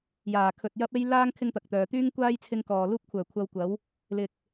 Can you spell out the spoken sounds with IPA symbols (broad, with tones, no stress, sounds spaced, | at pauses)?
j aː˨˩ kʰ ɵ˨ t̚ j ɐ˥ p̚ e˥ j l aː˥ ŋ kʰ ɪ˥ ŋ t̪ ɐ˨ k̚ t̪ œː˨ t̪ yː˥ ŋ kʷ aː˥ j t͡sʰ ɪ˧ ŋ k ɔː˨ l uː˥ p̚ kʷʰ œː˨˩ kʷʰ ɐ˧ w kʷ ɐ˨˥ w | l ɪ˨ k̚